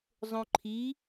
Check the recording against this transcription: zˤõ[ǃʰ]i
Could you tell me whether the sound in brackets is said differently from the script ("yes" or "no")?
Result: no